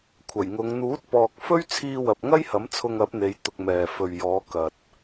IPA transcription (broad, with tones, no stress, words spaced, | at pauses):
kʷʰɐ˨˩jŋʊ˨˧ŋ n̪uː˨˥t̚pɔː˨k̚fɵ˥ɥt͡sʰiː˧ wɐ˨p̚ŋɐ˥jhɐ˨˥m t͡sʰʊ˧ŋɐ˨˥p̚n̪e˨˧j t̪ʊ˧k̚mɛː˨ fɵ˨ɥjɔː˨˧ kɐ˨t̚